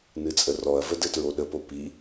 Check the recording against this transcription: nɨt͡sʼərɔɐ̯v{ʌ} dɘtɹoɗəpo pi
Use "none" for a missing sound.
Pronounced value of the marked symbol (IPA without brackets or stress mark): ə